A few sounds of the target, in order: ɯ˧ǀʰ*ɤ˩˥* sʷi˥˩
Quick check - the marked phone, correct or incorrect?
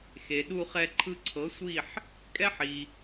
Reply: correct